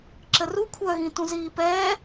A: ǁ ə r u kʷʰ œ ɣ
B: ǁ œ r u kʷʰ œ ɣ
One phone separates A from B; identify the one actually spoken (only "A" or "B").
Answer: A